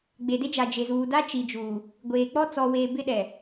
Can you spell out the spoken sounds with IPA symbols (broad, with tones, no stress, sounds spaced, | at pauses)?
ɡ͡b e˨ d e˦ d͡ʒ a˨ d͡ʒ e˨ z uː˨ d a˦ t͡ʃ i˨ d͡ʒ uː˨ | ɡʷ eː˨ k͡p ɔ˦ t͡s ɔ˨ w eː˨ b ɪ˦ ɗ ɛ˨